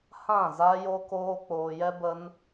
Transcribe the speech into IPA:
h ã˦˨ z a˦ j o˦ k oː˦ k͡p oː˧ j ɛ˦ b ə˦ n

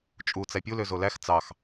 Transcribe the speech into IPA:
t͡ʃʼ u t͡s æ pʲ u l ø z o l æ x t͡s ɑ x

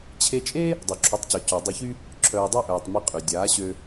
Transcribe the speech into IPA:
t͡ɕʰ e˧ t͡ʃʼ e˦ | dˤ o˨ ǁʰ o˨˦ tˤ c œ˨ c ø˨ dˤ y˧ ç y˦ | ǁʰ œː˧ dˤ œ˦ ʔ œː˨ tˤ m i˧ qʼ y˨ dʲ aː˨˦ ɕ ø˧

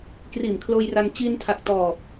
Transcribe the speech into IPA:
k r iː˨˩ m kʰ l oː˧ j r a˧ n t͡ɕ iː˧ n tʰ a˨˩ k̚ t ɔː˨˩ p̚

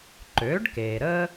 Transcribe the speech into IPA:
ǃ øː˩˥ ɖ k eː˩ ɾ əː˥

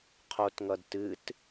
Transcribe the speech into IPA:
qʰ o t ŋ ʌ d t ɨ t

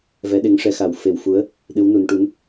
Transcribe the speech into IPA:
v ɛ˧˥ ɗ e˧˥ ŋ ʂ ɛ˧˥ x a˨˩˦ w f e˨˩˦ w f u˧˥ ə̯ | ɗ ɨ˧˥ w n u˨˩˦ n ʈ u˧˥ n

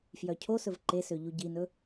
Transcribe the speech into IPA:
f j œ cʰ o s ɵ v ǃ e s ø ʎ u ɟ i n ɵ

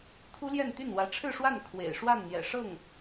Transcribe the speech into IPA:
t̪ʰ u˥ l j ɛ˥˧ n t̪ y˥˩ n w ä˧˥ ʈ͡ʂʰ ɻ̩˥˧ ʂ w a˥˩ n kʰ w ḛ˨˩ ɪ̯ ʂ w a˥˩ n n̪ j ɛ̰˨˩ ʂ ɤ˥˩ ŋ

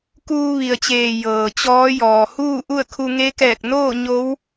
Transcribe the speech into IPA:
k uː˧ ʋ i˩ ə̯ t͡ɕ eː˩ j ɤː˩ t͡ɕ ɔː˧˥ j ɔː˩ h uː˥˨ ʔ u˥˨ ə̯ kʰ u˧ ŋ e˧˥ k ɛː˧˩ k̚ n oː˥˨ ɲ o˧˥ w

